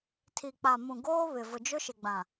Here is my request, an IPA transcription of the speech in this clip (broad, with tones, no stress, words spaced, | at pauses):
tʰi˨k͡pa˨mũ˨ɡoː˦ βɪ˨ vʊ˨d͡ʒʊ˦ʃɪ˨ɡ͡bã˨